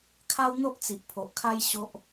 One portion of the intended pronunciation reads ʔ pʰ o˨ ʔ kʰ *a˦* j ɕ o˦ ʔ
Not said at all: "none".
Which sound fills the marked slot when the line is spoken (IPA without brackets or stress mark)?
a˦